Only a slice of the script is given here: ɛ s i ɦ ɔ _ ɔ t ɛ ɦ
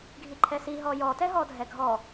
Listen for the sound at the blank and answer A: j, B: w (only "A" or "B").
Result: A